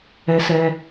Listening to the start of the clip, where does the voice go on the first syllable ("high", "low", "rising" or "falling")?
high